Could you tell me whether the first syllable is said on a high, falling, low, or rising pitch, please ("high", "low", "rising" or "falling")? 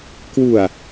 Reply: low